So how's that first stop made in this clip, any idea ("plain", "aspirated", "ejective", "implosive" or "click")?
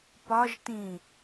plain